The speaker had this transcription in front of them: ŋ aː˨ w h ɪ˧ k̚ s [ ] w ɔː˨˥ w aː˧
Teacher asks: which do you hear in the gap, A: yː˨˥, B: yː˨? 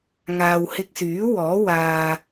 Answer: A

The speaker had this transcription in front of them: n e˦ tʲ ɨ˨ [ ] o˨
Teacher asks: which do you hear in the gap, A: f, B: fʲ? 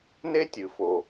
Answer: A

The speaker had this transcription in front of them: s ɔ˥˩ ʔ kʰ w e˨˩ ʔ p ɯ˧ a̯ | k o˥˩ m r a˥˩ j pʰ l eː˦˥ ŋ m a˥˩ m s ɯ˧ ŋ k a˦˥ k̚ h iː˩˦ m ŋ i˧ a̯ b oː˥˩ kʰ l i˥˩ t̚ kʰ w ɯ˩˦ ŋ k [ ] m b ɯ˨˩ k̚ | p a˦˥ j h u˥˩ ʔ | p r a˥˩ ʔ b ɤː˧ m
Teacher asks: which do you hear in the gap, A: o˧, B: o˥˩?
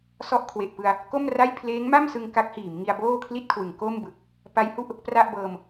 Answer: B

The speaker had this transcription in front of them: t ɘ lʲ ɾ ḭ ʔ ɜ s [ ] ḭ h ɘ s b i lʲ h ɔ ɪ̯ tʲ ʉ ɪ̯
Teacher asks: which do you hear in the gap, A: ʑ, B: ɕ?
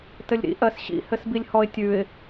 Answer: B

